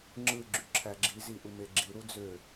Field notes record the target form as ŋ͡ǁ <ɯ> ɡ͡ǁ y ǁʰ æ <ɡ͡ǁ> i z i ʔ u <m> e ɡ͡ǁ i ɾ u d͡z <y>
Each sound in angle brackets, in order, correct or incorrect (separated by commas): correct, correct, correct, incorrect